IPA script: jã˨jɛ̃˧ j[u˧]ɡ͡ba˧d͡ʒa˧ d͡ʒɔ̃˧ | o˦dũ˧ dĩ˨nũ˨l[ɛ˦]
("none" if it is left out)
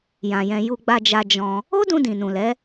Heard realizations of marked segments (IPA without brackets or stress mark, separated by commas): u˧, ɛ˨˦